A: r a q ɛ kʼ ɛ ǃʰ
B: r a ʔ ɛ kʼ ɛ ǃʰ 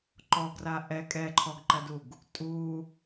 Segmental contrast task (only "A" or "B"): B